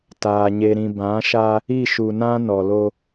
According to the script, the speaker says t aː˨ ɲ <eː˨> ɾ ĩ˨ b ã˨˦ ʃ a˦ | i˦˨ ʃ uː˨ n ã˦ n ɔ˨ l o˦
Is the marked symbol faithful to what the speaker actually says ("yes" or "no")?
no